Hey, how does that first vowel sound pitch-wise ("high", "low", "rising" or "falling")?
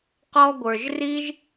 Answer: high